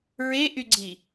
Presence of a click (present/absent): present